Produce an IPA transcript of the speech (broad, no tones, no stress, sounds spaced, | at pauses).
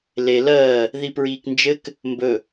l e l ɜː | ð i p ɹ iː k n d͡ʒ ɘ k | m b ɵ